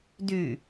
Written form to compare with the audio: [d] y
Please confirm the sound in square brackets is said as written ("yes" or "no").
yes